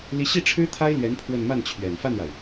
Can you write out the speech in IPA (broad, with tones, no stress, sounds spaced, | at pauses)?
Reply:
l i˧˥ ɕ i˥˩ ʈ͡ʂʰ ɻ̩˥ t̪ʰ a˥ ɪ̯ l ɥ ɛ˧˥ n pʰ w ə˥˧ n m a˥˩ n t͡ɕʰ ɥ ɛ˨˩ n f a˥˩ n ɻ a˩ ɪ̯